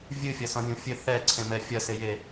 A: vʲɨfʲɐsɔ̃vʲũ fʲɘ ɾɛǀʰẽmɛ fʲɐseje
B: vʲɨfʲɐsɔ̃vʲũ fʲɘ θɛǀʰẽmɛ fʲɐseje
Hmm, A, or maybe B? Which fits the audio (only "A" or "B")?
B